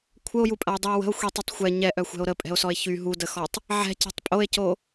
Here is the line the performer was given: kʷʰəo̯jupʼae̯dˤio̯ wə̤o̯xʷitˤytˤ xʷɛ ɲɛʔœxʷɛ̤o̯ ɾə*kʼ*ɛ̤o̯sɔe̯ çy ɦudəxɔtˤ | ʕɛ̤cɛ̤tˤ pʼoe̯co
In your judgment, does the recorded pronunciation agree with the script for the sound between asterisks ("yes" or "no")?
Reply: no